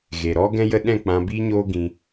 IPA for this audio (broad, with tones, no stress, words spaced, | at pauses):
ɣe˨ɾɔ˦ ɡɛ̃˧jə˧ ɗɛ̃˦˨k͡pã˧biː˦ɲoː˦ ɡĩ˧